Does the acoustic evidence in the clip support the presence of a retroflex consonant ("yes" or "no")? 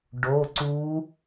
yes